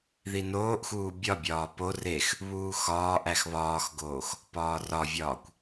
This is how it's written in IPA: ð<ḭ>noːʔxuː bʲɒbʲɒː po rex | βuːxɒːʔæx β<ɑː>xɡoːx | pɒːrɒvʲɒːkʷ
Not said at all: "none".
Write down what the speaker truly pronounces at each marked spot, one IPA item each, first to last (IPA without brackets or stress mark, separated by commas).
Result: i, ɒː